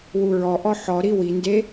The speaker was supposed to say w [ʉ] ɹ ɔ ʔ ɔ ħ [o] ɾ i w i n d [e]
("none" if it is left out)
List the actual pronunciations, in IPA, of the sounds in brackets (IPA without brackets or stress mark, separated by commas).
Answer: u, ɔ, e